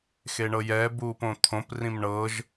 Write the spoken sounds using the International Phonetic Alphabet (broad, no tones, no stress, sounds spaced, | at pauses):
x e ɳ ɤ j ɛ b uː p õ t̪ʰ õ p r ĩ m ɳ ɤ ʒ